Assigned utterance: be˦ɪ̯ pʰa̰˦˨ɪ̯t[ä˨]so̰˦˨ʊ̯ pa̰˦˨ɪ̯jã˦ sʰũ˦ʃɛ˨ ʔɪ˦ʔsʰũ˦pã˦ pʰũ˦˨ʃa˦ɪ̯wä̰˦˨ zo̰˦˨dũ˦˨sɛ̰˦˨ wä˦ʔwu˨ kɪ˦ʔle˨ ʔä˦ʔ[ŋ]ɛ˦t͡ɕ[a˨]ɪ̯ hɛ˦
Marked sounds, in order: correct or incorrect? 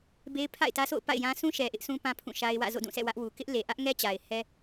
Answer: incorrect: ä˦, correct, correct

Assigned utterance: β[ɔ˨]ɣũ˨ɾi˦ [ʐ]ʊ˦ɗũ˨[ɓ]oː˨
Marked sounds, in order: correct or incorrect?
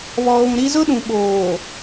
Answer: correct, incorrect: z, correct

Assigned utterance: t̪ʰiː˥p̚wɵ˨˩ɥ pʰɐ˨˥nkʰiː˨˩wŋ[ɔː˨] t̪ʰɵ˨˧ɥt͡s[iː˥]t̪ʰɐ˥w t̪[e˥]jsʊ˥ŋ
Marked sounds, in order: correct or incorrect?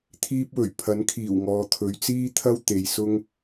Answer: correct, correct, incorrect: e˨

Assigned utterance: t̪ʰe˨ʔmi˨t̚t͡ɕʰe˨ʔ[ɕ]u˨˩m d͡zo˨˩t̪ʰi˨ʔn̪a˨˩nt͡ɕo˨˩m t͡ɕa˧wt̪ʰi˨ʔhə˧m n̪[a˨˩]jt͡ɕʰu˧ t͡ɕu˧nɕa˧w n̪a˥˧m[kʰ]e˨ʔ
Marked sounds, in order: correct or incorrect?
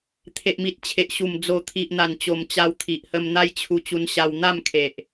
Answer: correct, incorrect: a˦, correct

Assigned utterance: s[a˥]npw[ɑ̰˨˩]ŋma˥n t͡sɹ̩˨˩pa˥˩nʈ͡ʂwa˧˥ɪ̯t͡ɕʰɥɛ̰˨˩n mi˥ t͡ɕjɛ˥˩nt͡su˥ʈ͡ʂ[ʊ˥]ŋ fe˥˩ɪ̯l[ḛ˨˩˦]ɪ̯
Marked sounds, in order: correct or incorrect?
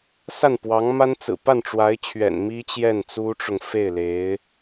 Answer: incorrect: a˥˩, incorrect: ɑ˧˥, incorrect: ʊ˨, incorrect: e˧˥

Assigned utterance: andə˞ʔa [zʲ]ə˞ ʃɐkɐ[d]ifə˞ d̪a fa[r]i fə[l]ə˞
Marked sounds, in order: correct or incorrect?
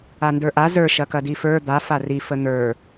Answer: incorrect: z, correct, correct, incorrect: n̪

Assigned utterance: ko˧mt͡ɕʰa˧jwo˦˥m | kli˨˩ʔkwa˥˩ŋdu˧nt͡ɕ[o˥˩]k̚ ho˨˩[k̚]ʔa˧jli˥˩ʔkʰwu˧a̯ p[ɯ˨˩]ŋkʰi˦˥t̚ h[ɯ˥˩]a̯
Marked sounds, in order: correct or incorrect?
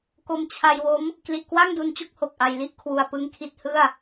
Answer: correct, correct, incorrect: ɯ˦˥, correct

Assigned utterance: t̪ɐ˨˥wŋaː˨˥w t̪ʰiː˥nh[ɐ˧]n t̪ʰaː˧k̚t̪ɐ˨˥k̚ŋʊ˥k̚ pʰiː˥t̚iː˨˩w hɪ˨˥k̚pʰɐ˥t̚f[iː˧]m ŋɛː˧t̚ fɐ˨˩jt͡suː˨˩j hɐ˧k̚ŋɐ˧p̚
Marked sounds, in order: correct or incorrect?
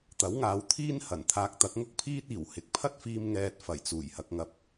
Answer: incorrect: ɐ˨˩, correct

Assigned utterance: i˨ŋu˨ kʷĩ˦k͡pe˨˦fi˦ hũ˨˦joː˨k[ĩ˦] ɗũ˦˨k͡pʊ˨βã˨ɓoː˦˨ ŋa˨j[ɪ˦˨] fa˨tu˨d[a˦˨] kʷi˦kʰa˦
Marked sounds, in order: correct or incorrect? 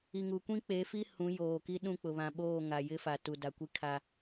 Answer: incorrect: i˦, incorrect: ɪ˦, incorrect: a˨

